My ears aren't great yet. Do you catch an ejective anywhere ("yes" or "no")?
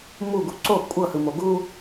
yes